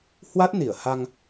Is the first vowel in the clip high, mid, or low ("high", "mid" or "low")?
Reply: low